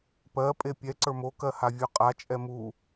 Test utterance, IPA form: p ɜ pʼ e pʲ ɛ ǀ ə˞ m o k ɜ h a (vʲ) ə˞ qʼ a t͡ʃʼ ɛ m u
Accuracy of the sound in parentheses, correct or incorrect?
correct